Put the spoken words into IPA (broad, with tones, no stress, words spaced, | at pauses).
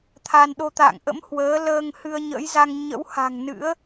t̪ʰa˧n ɗo˧t̪a̰ː˧˨ŋ ʔə̰˧˥m hwəː˨˦ ləː˧ŋ hɨ˧ə̯ɲə̰˧˥jza˧ŋ ɲə̰˧˥wha̤˨˩ŋ nɨ̰˧˥ə̯